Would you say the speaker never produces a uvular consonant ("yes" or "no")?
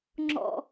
yes